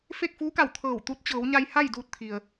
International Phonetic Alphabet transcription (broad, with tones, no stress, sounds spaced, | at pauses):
f e˥˨ k̚ f uː˧˥ k a˧˩ w t̪ʰ ɤː˧˩ w t̪ u˧ t̚ t͡ɕ ɤː˩˧ w ɲ a˧ j h a˥˨ j d uː˧ t̚ t̪ʰ i˩ ə̯